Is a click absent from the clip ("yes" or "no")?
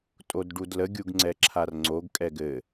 no